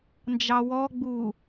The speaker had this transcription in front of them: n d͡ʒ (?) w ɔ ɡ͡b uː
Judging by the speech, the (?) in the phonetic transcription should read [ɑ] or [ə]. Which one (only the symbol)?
ɑ